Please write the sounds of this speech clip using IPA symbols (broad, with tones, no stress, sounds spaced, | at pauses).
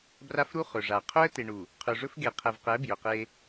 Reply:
b r a˦ f ɾ u˦ χ ɵ˨ ʐ a˨ qʰ ɵ˦ ə̯ t e˨ ɳ u˨ | qʰ ɵ˨ ʐ ɵ˦ f ɡ e˨ qʰ ɛ˨ v q ɛ˨˦ b j ɵ˨ q e˦